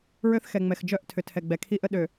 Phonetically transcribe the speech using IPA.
ɹ ø˦ θ x ɛ˨ ŋ͡m ɛ˨ x d͡ʒ œ˦˨ ʔ tʰ ʏ˨ tʰ ɛ˨ ɡ͡b ɛ˨ kʰ i˦ ʔ ə˦ ɗ ø˨

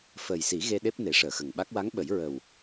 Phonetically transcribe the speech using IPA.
f əː˨˩ j s i˨˩˦ ɣ e˧ ɗ e˦˥ p̚ n e˨˩˦ ʂ əː˨˩˨ x ə˨˩ ŋ ɓ a˦˥ k̚ w a˧˥ ŋ ɓ ə˨˩˦ j ɹ ə˨˩ w

